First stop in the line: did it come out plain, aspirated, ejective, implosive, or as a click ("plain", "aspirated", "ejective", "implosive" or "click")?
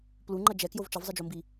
plain